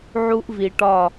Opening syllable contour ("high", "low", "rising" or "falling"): high